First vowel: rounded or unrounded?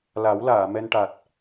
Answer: unrounded